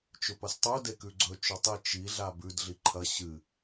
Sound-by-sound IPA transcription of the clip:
t͡ʃ ɵ p ɐ s tˤ u d e k ʉ ɡ͡ǀ ɵ t͡ʃ ɵ tˤ i t͡ʃ i ɮ a b ʉ d ɮ i ǃʰ ɐ ɕ ɨ

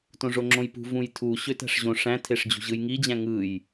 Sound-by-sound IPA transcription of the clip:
t õ ʐ o ŋ͡ǁ õ j p ṳ v ũ j tʰ u ɕ ø t æ̤ ʂ ʑ õ ʂ æ̃ tʰ e ʂ d͡ʑ ṳ ʑ ɯ j ŋ i d͡ʑ æ̃ ŋ ɯ j

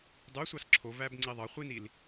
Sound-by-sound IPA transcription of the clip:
dˤ y sʷ ɑ s ǁʰ o v æ b ŋ͡ǀ i ðˤ ɑ χʷ i n i l

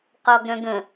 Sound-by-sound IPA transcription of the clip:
q ɔ ɡ ɾ œ̃ ɡ ə̃

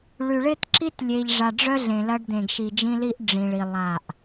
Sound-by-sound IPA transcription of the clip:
ɭ y˨ ɭ ɪ˦ t ǁ i˦ t lʲ e˨ ʎ ʐ a˨ ɖ͡ʐ œ˦ ɮ ẽ˨ l ɐ˦ ɖ d̪ ẽ˨ ɡ ʃ i˨ d͡ʒ ĩ˦ l i˦ ʔ ɖ͡ʐ ĩ˨ ɭ i˨ lˠ a˦˨ ʔ

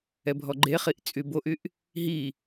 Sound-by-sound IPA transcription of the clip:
ɛ bʱ ɔ ɡ͡ǃ e χ i ʔ t͡sʼ y b o ʔ y ʔ | ɦ i

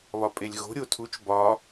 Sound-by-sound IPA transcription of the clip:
β ɒ pʼ e lʲ ɣ o̤ ɾʲ o tʰ u t͡ʃ b ɒ

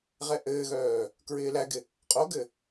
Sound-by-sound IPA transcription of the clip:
ʁ ɛ ʔ ɘː ɣ œː | k ɹ ɪː l æ ɡ ɪ | qʼ o ɡ ɘ

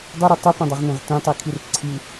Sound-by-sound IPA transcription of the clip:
dˤ ɨ ɾ u tˤ ʉ p ẽ dˤ a ʁ n ẽ ʁ t ẽ tˤ i kʰ i r ǀʰ i

